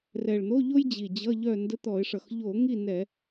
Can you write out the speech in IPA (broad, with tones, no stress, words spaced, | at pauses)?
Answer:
rɛ˨˩ɭn̪o˧˥˧ʎo˥j d͡ʑi˨˩d͡ʑʌ˧˥˧ʎœ˥˨ ndə˧˥˧t̪ɔ˧˩˧ɪ̯ʂʌ˨˩x ʎo˧˩˧ ŋi˥˨nɛ˧˩˧